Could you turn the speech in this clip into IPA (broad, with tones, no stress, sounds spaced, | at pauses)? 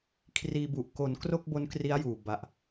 kʰ r iː˧ b u˨˩ ʔ k o˩˦ n k r o˥˩ k̚ b o˦˥ n k r i˦˥ a̯ j uː˨˩ b a˨˩ ʔ